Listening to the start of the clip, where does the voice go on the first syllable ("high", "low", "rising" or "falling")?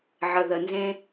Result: low